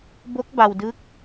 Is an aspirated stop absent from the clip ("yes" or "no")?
yes